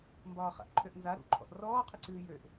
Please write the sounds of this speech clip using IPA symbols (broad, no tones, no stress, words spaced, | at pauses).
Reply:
mbɒːχa̰ʔǃʰøʔnza ɾṵǃʰɔ̰ʔ rɔːqʰɨǀɨː jøʔ